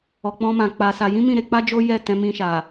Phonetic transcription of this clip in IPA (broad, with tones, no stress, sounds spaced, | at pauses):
ɔ˨ k͡p ɔ̃˧ m ã˨ k͡p a˧ s a˧ j ĩ˦ m ĩ˦˨ ɾ e˨˦ k͡p a˦ d͡ʒ o˦ j ɛ˦˨ t ɛ̃˧ m ĩ˧ ʃ a˨